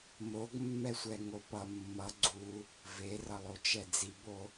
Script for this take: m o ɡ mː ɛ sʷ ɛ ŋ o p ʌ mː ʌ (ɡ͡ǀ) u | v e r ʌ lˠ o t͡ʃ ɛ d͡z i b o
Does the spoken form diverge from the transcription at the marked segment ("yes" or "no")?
no